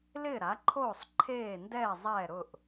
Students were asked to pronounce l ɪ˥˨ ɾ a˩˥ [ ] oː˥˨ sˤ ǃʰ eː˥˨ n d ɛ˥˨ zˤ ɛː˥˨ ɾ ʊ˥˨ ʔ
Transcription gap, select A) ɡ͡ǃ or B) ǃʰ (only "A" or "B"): B